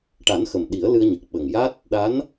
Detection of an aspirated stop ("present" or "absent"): absent